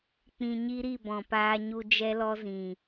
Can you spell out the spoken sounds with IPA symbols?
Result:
k͡pĩ˧ɲi˦ɾi˦˨bɔ̃˨ paː˧ɲu˧ d͡ʒɛ˦lɔ˦zĩ˨

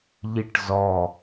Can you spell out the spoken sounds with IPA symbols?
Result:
ʎiʈzɔ

